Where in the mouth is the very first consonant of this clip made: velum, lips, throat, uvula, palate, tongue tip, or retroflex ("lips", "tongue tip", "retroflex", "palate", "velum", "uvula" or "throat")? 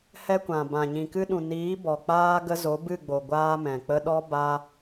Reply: throat